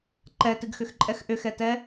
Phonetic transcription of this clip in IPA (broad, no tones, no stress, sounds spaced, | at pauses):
ǃ ɛ t ɨ ɡ x ʏ x ǃʼ ɛ x ʔ ʏ x ɛ t ɛ